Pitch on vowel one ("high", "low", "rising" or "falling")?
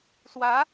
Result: rising